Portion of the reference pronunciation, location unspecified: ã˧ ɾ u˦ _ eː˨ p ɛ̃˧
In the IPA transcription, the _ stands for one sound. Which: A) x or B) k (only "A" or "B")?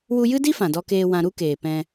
B